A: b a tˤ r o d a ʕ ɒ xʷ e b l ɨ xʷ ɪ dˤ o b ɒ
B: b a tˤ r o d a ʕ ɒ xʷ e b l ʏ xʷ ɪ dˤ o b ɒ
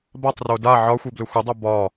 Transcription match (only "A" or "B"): B